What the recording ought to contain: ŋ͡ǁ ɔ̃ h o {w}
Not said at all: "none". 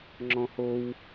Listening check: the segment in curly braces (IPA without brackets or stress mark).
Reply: w